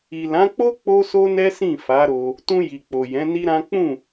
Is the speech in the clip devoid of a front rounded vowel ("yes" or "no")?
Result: yes